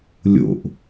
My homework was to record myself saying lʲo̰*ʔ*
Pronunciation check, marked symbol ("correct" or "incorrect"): correct